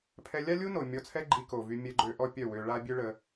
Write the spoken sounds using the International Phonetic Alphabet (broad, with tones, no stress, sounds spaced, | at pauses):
pʰ ɛ˧ lʲ a˦ lʲ u˦ n o˨ mʲ ɔ˧ t͡sʰ ɛ˦ ɡ͡ǃ i˧ k o˨ v y˧ mʲ ɛ˧ ɡ͡ǃ ø˧ ʔ ɔ˦ pʲ œ˦˨ w ø˧ ɭ a˦ bʲ ø˦ ɭ ə˧